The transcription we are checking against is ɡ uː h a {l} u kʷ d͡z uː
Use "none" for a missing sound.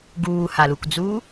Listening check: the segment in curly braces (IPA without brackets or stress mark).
l